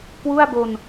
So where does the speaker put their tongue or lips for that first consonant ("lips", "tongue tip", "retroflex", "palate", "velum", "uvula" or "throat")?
velum